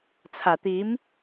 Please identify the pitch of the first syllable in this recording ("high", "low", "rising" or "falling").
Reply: low